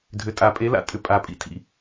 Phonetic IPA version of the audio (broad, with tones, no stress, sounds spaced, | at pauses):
dʱ ʏ˨˩ tʼ a˨˩˦ pʼ e˨˦ l a̰˨˩ tʼ ʏ˨˩ pʼ a˨˩˦ pʼ ḭ˦˨ tʰ ḭ˨˦